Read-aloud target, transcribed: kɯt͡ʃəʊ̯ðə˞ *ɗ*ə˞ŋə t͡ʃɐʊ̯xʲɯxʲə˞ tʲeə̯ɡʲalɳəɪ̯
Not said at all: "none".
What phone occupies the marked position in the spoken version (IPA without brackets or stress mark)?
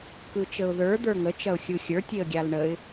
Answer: d̪